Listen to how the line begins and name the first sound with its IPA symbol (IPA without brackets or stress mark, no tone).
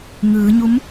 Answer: ŋ